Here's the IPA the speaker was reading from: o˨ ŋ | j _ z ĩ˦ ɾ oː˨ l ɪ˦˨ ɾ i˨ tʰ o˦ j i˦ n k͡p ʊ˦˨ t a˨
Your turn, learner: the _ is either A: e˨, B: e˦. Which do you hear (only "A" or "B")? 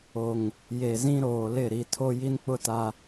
A